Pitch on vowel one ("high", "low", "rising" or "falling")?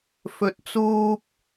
low